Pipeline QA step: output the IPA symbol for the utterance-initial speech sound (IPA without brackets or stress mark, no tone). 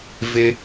v